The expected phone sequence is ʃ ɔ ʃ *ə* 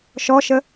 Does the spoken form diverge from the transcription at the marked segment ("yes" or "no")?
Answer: no